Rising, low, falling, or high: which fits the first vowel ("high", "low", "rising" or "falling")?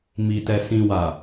low